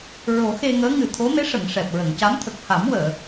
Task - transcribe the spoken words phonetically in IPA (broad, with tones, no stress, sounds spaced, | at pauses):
ɹ o˨˩˦ x e˧ ŋ əː˧˥ ŋ ɨ˨˩ t̪ʰ o˧˥ m e˧˥ ʂ ə˨˩˨ ŋ ʂ ɛ˨˩ p̚ ɹ ə˨˩˨ ŋ c a˧˥ m t̪ʰ ə˨˩ k̚ h a˨˩˦ m w əː˨˩˨